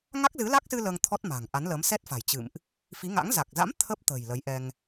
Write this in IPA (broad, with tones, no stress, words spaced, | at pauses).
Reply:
ŋa˦˥k̚zɨ˨˦la˦˥k̚sɨ˧ ləː˧ŋt̪ʰɔ˦˥t̚ ma̤˨˩ŋʔa˨˦nləː˨˦m sɛ˦˥t̚fa̤˨˩j t͡ɕɨ̰˧˨mʔ | fi˨˦ŋa̰˧˥ŋ za˨˩k̚za̰˧˥m t̪ʰə˦˥p̚t̪ə̤˨˩j lə˨˦jʔɛ˧ŋ